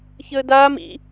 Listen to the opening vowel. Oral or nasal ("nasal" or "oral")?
oral